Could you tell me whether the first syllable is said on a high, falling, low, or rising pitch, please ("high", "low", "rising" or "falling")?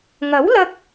rising